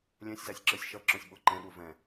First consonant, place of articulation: alveolar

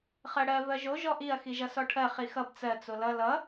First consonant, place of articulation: uvular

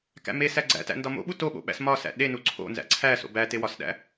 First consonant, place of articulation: velar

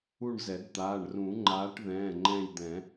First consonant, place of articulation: retroflex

